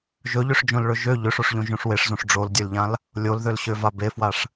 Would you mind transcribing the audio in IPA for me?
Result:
ʒɵʎøʂd͡ʒõlɭɵ ʒø ʎøʂoʂʎõʒõʂ weʂzõʂ ɖ͡ʐoldʲølʎãl | lʲolðølɕøva befwaʂ

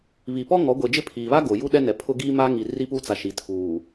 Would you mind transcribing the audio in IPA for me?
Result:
βi˨pɔ˦ŋɔ˨˦ ɡʷe˨d͡ʒɪ˦ pʰiː˨βa˦ ɡo˨ ju˦ɗɛ˦ nɛ˨˦pʰʊ˦ ɡiː˦ma˦ŋi˨ ri˦pu˦t͡sa˨ ʃi˨tʰuː˨

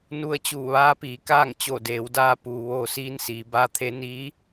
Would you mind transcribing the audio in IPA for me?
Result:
nu˧ə̯t͡ɕuː˧˩ ʋaː˧˥piː˩˧kaː˥˨ŋ t͡ɕo˧˩deː˩˧wdaː˧puː˩ ʋoː˧siː˧˥nsiː˩˧ baː˧˥t̪ʰe˧˥ niː˧˥

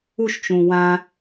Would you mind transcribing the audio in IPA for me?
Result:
uʃt͡ʃũ wã

